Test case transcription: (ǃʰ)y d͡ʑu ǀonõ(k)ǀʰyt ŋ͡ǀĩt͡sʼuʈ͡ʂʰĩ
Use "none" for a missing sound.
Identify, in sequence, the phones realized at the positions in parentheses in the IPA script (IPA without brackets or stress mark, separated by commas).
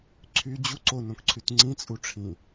ǀʰ, k